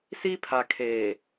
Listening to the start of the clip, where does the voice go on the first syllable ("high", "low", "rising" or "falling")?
high